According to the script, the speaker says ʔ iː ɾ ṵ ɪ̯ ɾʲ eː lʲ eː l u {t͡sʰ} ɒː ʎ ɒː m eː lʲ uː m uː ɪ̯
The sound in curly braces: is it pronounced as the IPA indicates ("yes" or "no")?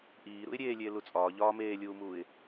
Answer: no